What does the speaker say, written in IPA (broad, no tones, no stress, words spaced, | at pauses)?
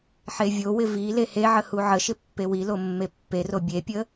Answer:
ħevʲowɪ vi leheʕə huʕəʃɪ pːewilo mːepːero bʲepʲə